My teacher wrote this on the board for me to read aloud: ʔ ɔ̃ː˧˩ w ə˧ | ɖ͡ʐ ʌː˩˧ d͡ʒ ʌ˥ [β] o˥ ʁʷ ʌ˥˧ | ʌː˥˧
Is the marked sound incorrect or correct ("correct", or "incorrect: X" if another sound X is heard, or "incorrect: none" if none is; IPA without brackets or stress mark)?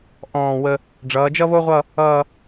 correct